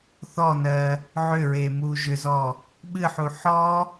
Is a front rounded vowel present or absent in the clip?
present